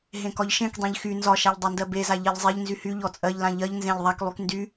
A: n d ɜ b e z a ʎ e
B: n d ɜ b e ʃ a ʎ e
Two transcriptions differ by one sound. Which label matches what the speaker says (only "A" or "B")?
A